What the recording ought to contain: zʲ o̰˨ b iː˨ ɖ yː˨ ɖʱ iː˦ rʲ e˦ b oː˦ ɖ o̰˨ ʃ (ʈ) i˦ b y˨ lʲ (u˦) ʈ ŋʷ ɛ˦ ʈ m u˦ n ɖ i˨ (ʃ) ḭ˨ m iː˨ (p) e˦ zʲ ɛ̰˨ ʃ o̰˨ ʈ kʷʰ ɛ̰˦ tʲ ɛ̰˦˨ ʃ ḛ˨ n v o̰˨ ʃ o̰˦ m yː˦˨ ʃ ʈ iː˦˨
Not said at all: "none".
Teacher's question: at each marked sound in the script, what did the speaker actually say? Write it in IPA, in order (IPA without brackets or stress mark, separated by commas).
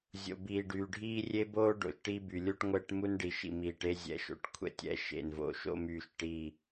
ʈ, u˦, ʃ, ʈ